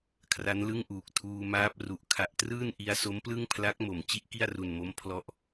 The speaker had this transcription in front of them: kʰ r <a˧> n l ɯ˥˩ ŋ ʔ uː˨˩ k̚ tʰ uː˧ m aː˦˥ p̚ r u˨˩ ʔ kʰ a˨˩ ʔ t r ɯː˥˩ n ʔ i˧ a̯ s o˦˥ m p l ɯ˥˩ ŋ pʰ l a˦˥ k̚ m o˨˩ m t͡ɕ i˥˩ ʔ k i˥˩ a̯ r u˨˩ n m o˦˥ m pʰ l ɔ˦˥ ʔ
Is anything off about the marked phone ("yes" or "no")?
yes